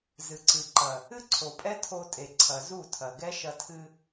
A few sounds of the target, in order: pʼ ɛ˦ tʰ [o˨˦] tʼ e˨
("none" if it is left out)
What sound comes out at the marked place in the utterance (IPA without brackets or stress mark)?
o˧